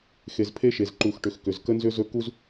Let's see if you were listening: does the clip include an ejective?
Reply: no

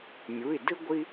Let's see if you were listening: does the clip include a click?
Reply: no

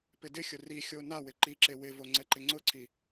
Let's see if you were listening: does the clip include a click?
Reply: yes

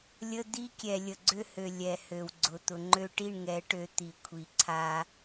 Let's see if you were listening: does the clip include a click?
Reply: yes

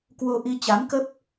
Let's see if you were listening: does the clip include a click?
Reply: no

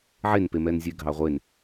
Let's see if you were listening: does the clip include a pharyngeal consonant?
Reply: yes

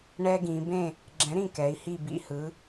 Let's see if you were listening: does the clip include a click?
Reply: yes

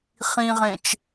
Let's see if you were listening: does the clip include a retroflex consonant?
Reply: no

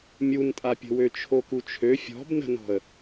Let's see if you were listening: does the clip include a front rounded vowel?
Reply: yes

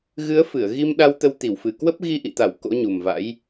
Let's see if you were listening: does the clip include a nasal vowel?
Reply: no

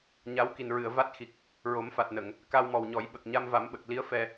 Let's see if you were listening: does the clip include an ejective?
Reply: no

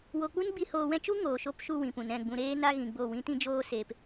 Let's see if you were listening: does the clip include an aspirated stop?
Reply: no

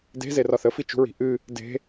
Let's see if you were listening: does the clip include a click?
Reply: no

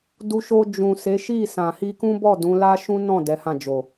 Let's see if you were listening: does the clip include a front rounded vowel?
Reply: no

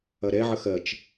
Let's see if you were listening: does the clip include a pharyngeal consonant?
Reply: yes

